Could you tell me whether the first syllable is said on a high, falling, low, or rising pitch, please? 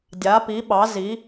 rising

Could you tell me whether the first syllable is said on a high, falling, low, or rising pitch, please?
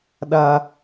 low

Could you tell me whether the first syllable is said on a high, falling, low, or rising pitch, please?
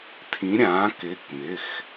rising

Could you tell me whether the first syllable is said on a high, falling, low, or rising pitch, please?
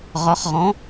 rising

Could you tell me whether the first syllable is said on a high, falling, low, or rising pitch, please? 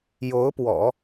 rising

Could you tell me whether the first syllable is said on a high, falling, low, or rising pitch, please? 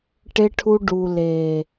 high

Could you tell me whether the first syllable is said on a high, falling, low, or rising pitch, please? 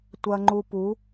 low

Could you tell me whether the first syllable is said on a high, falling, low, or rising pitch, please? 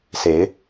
rising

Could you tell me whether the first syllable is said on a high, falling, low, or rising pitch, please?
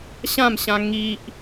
falling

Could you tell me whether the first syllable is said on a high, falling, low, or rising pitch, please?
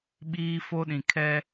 high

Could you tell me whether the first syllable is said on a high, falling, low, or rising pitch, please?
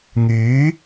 rising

